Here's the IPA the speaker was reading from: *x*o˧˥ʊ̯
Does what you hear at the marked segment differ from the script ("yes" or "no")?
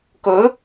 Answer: yes